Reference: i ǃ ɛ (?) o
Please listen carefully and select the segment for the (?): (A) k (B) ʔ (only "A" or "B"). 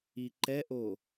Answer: B